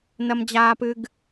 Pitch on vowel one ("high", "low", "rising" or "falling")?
high